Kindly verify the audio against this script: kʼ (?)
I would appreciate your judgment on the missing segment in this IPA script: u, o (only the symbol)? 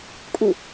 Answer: u